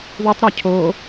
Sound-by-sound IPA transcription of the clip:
ðutˤɾɜ cʰo

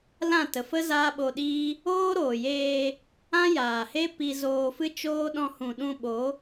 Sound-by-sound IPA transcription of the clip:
lã˦˨ tə˨fə˦ zaː˦ɓo˧ɗiː˦ | oː˦ɾoː˨jeː˧ | ã˦jaː˨he˦ pi˧zoː˧fɨ˦t͡ʃoː˦ ɗɔ̃˧hũ˨ɗũ˧ ɓo˨˦

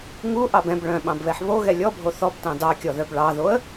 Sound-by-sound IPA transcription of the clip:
ŋuʔɑb ɛ̃b ɭœ̃ɓɑ̃bβɛħ βoɣɛ lʲɔbʱo θɔbtɑ̃ dɑkʲɔðœb ɭɑðoə̯

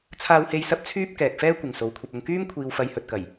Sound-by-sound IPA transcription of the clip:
t͡sʰaː˥whe˥j sɐ˥p̚t͡sʰyː˥p̚kɛː˨k̚fɛː˥ kʷɪ˨ŋso˨˧wkʷʰɐ˧p̚ʊ˧ŋ kyː˥m kʷʰiː˧wfɐ˧jhɵ˨t̚kɐ˨˩j

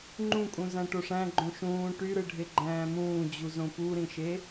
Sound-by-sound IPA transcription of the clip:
ŋ͡ǃũkʼũ zæ̃ʈoʂæ̃ ɡ͡ǃõʃũː ʈyɾɯɖʱe ɡ͡ǃæ̃ːmũːd͡ʑuzõ puɾĩʃe

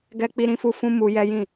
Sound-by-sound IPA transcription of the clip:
ɡɛ˦k͡pi˦ɾĩ˦fu˦ fũ˦mu˧ jɛ˦jĩ˦˨

